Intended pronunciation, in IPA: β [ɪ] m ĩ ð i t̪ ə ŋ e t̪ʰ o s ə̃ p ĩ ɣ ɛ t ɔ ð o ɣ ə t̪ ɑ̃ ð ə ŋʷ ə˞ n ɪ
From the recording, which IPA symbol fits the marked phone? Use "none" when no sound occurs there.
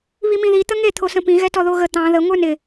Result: i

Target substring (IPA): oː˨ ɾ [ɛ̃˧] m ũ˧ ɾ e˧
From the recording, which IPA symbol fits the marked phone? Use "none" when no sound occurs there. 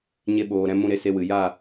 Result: ɛ̃˧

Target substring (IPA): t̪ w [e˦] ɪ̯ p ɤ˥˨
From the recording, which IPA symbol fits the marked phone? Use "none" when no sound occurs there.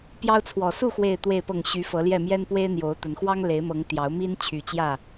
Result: e˥˨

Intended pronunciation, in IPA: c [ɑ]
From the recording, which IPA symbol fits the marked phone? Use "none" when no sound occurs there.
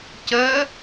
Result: ə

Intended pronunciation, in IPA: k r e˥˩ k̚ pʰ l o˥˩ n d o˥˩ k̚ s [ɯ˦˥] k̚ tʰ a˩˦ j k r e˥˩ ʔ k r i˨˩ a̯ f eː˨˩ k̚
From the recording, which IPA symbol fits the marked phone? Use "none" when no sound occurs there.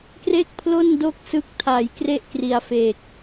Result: ɯ˦˥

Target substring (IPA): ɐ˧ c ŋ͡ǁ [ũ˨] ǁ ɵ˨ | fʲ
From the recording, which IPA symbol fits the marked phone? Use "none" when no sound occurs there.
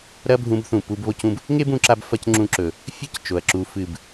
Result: ũ˧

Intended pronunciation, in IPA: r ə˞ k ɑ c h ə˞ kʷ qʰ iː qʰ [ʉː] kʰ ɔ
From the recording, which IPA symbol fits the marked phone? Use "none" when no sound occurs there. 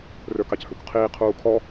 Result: uː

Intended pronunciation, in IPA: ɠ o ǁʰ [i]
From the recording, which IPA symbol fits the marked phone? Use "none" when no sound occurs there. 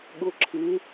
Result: ɪ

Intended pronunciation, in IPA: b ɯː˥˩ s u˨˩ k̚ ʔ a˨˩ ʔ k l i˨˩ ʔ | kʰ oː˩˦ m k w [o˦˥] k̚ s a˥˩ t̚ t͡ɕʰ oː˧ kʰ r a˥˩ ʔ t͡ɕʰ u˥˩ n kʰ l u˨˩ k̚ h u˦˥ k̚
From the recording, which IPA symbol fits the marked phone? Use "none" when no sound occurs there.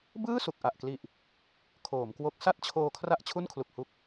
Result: o˦˥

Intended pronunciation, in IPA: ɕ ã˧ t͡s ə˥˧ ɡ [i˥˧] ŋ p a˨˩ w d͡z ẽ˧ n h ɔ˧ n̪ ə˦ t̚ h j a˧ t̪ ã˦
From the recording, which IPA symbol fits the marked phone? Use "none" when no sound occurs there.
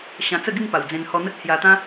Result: i˥˧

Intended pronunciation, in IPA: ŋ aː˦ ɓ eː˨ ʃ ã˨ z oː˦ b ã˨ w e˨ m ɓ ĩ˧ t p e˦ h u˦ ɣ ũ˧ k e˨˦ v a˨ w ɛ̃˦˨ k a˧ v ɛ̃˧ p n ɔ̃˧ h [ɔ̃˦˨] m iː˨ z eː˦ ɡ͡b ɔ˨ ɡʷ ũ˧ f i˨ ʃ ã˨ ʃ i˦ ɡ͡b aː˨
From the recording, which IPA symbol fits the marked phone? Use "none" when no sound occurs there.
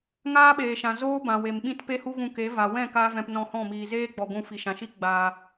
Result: ɔ̃˦˨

